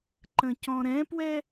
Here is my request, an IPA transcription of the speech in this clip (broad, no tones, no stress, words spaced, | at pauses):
ǃə̃cɔ̃ɾɛ̃pwɛ